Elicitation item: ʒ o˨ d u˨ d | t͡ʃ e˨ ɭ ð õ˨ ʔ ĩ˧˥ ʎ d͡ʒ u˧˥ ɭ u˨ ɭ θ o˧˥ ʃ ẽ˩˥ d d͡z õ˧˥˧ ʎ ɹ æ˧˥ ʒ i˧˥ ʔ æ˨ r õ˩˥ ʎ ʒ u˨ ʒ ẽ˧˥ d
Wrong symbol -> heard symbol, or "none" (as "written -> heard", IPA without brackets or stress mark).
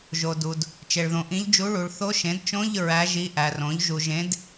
d͡z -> t͡ʃ